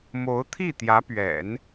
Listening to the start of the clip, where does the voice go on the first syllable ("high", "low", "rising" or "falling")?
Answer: rising